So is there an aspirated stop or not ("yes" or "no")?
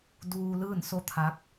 yes